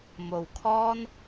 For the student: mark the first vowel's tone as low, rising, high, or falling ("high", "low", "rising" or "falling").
low